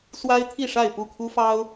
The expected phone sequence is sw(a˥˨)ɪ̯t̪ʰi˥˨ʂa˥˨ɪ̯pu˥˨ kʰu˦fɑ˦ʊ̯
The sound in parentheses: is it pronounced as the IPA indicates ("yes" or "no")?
no